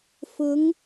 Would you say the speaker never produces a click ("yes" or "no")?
yes